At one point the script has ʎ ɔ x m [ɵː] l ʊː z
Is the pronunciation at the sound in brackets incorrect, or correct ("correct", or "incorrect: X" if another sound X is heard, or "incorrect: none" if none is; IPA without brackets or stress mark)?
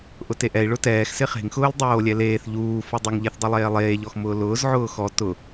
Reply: incorrect: ʊː